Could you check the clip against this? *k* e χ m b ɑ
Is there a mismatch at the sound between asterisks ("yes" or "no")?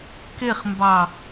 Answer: no